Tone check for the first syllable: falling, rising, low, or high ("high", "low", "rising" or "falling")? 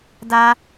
high